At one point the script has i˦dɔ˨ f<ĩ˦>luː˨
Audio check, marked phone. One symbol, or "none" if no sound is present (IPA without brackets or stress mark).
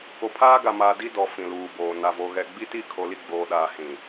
ĩ˨